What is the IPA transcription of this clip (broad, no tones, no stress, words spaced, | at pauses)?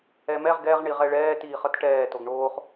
ɛmɛʁ ɡɛʁ ɳiʁɛɭɛː tiːχʌtʈɛː toɡɳoːχ